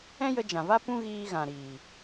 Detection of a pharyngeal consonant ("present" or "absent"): absent